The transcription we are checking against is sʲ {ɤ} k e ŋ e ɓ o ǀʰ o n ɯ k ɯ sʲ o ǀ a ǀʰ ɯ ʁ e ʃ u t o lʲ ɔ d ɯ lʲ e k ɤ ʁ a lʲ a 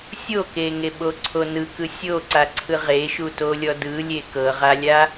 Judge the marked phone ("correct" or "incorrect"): incorrect